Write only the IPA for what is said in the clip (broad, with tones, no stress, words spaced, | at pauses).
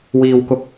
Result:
wiː˥wkʊ˥k̚